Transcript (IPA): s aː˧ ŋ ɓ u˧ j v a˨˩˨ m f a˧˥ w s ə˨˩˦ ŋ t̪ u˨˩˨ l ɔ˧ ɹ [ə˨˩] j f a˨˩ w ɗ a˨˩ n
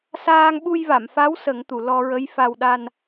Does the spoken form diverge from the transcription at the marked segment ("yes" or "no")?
yes